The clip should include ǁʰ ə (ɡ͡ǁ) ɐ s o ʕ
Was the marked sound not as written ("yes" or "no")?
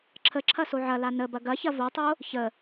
yes